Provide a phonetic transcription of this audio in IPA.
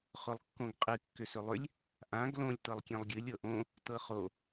χ ʊ lˠ kː õ ɡ qʼ ɨ kː ʏ s ʏ lˠ ʏ lʲ | ʔ ã ɡ l õ lʲ t ɤ lˠ kʲ ẽ lˠ ɡʲ ɨ lʲ ɤ ʔ õ | t ɤ χ o

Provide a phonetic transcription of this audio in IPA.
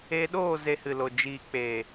e˧ ɗ oː˦˨ z e˧ h ɨ˨ l o˨ d͡ʒ iː˨ k͡p eː˨

